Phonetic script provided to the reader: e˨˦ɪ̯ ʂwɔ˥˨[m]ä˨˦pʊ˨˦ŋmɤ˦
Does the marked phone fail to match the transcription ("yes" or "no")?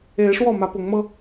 no